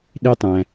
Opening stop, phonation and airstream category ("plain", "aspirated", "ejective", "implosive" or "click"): implosive